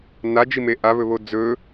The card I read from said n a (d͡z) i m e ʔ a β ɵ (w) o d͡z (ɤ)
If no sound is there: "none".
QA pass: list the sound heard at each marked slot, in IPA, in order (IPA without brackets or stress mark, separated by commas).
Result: d͡ʒ, β, ɵ